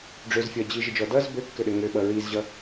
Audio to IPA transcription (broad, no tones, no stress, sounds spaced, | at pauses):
ɖ͡ʐ ø z fʲ ʌ d͡ʑ i ʒ ɘ d͡ʒ ɔ d ʌ z b ø kː ɘ ɗ ɘ ŋ ø ɓ ʌ ɹ i z ʑ ʌ